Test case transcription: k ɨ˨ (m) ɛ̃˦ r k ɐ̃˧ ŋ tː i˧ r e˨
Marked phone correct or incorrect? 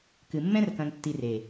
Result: incorrect: mː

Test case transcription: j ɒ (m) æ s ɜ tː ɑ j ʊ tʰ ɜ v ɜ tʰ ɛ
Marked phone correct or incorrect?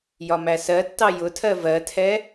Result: correct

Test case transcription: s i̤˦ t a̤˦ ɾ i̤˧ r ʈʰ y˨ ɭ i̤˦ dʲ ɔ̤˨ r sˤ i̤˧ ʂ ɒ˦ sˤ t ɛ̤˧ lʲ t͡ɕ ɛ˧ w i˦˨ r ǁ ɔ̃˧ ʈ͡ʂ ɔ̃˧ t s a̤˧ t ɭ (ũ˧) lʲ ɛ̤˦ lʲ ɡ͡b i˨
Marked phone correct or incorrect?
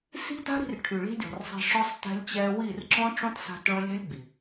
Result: incorrect: õ˧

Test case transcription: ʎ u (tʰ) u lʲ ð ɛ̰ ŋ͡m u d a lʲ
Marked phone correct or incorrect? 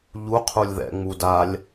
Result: incorrect: qʰ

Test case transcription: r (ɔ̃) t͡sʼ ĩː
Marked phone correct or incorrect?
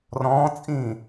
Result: incorrect: ɔ̃ː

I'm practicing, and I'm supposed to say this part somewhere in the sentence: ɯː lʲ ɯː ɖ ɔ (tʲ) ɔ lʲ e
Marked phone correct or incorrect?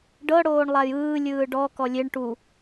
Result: incorrect: k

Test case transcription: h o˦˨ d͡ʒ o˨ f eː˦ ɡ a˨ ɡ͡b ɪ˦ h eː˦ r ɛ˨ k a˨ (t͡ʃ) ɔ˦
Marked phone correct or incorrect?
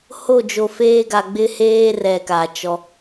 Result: correct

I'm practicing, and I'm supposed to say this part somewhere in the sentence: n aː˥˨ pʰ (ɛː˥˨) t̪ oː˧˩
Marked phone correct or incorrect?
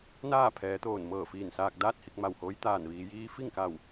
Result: incorrect: ɛː˩˧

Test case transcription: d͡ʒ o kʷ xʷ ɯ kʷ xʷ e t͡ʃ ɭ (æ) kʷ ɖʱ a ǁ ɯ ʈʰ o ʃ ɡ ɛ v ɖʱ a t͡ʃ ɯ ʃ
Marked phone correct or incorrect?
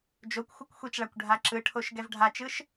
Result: incorrect: a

